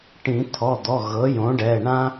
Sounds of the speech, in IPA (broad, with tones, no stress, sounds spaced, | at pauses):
ʈ ĩ˨˩˦ t̪ʰ ɔ˩˧˩ d̪ ɔ˩˧˩ ɣ ɤ˩˥ j õ˩˥ ɖ ɛ˩˧˩ ɳ ã˦